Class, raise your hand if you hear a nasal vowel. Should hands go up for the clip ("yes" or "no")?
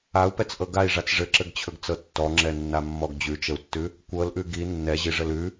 no